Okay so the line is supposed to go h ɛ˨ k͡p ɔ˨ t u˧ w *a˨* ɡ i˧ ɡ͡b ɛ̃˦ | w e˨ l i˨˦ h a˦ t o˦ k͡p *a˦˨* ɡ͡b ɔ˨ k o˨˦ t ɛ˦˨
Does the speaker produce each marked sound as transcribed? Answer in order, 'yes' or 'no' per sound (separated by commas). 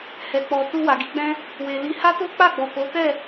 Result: yes, yes